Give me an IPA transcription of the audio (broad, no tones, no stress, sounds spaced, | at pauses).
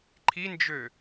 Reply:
ǃʰ i n d͡ʒ ø